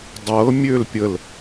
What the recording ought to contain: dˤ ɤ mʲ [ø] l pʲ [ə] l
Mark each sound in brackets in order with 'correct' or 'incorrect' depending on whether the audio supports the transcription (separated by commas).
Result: correct, correct